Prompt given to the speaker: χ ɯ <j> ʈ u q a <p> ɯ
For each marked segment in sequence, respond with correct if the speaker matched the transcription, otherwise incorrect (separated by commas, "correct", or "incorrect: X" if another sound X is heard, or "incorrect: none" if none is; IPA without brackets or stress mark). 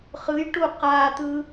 correct, incorrect: t̪